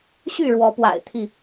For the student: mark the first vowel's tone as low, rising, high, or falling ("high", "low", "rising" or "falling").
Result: falling